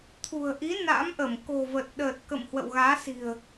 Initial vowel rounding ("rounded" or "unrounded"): rounded